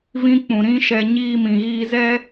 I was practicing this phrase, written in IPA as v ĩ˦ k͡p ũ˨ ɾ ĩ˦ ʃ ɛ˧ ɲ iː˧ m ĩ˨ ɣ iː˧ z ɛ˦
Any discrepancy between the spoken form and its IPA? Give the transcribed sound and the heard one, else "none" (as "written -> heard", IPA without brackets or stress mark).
none